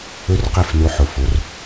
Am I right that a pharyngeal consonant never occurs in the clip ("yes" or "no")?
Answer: no